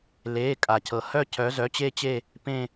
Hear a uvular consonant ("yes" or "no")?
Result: no